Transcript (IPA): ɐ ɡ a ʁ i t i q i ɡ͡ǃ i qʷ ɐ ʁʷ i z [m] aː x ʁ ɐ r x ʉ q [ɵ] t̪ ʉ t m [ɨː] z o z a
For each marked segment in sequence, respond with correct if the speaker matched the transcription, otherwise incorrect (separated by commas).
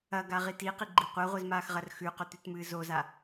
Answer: correct, correct, correct